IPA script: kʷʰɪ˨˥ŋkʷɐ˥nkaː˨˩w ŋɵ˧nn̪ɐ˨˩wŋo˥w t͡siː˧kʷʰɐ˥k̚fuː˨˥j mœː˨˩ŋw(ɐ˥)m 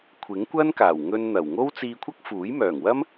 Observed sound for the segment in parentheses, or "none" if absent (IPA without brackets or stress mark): ɐ˥